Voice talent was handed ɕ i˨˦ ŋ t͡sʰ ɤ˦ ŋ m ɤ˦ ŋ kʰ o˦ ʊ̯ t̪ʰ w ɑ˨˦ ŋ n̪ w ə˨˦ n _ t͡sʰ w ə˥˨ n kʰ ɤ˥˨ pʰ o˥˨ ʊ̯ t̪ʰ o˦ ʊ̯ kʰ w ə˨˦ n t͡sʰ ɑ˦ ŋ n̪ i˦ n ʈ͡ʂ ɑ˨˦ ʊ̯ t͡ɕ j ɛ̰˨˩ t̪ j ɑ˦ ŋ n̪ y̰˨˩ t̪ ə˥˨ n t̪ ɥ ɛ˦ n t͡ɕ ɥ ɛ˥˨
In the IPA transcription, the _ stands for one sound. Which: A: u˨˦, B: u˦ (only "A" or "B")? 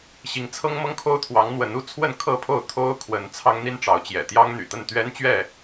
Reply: B